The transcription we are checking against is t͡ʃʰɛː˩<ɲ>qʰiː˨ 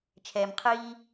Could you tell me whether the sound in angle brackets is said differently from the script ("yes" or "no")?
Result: yes